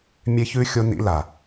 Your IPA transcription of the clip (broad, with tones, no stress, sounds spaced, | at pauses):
mʲ e˧ ç ʉ˧ xʲ o˧ n ḭ˧ l a˨